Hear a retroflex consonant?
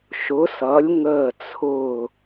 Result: no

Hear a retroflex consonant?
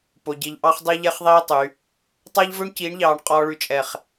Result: yes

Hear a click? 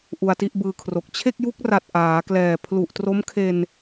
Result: no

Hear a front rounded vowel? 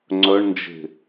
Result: yes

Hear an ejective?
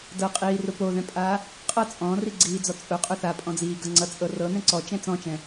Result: yes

